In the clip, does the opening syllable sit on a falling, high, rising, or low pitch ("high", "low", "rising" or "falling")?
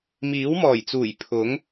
rising